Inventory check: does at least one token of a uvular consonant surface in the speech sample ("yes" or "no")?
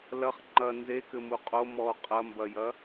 yes